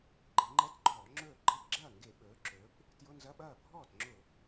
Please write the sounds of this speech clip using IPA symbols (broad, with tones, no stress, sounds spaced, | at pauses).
ɡ͡ǃ e˩˧ ŋ͡ǃ ɛ˧˥˧ t ɡ͡ǃ ɔː˧˩˧ ŋ͡ǁ ɵː˥˩ ɡ͡ǃ ɛ˧˥˧ p ɡ͡ǁ ɐː˥˩ ŋ ɡ e˧˩˧ ɓ ɵː˩˧ ǁ ɵː˩˧ p | t j ʊ˧˥˧ n z ɐ˧˥˧ ɓ ɐː˥˩ bʱ ɔː˥˩ t ŋ͡ǁ ʊ˧˩˧